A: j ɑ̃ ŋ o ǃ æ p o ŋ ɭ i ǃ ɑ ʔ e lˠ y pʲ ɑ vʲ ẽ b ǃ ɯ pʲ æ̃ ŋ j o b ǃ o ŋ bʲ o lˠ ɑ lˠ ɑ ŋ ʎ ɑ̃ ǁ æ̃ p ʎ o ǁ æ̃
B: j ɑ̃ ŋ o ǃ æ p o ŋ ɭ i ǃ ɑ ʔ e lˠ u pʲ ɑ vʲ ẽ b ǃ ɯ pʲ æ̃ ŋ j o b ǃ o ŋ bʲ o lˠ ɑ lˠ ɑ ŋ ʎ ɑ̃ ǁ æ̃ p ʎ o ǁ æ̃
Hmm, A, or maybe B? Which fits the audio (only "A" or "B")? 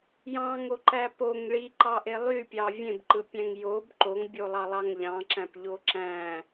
A